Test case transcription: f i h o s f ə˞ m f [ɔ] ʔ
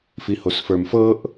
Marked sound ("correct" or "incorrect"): incorrect